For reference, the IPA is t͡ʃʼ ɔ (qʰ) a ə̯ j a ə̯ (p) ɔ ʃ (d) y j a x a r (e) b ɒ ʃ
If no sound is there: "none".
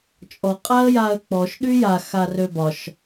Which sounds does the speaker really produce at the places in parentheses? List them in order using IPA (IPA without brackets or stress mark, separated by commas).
qʼ, k͡p, ɗ, ø